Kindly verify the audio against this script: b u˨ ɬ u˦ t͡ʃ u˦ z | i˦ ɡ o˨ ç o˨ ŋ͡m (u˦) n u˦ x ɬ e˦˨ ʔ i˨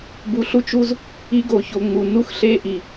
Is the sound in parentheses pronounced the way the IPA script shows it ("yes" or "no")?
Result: no